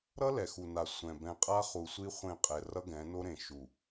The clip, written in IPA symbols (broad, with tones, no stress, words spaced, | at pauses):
ɾʌ˦ lɛ˨xu˨na˨ sʷɛ̃˨ bɛ̃˨qʼa˦χu˨sʷi˦ χʷẽ˦˨qʼɛ˨ rʌ˦ɡɛ̃˨˦no˦ɾẽ˨ ʃu˨